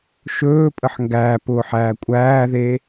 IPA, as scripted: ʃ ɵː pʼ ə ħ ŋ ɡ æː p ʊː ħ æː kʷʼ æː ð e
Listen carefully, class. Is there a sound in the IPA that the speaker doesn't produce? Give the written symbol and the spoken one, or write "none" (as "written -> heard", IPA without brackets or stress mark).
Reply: none